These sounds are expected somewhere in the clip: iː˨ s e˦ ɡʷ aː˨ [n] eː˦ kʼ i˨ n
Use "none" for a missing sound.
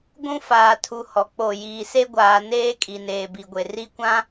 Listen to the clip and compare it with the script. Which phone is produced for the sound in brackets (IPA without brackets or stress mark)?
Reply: n